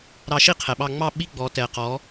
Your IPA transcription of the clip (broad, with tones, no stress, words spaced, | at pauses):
ɾɑ˧ʃi˦˨ qʰɛ˨ɓɑ˧ ŋ͡mɑ˦˨ ɓi˦ɡ͡bɔ˨˦tɛ˨qɔ˨˦